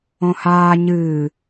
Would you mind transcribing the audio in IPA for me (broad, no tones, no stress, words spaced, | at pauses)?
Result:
õhaː ɲɨː